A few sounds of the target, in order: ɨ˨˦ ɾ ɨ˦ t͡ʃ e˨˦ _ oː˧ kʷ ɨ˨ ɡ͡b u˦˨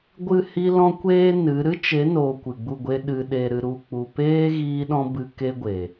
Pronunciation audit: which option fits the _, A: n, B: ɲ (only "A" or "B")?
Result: A